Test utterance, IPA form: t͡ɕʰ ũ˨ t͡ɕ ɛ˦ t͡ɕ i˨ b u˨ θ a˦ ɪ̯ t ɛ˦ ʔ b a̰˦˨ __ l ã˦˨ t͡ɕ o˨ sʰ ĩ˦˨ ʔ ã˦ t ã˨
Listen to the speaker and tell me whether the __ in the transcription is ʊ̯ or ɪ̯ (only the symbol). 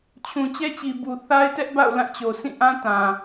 ʊ̯